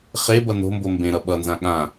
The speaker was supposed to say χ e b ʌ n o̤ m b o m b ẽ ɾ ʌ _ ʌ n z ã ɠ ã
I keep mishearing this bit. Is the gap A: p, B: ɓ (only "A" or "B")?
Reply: B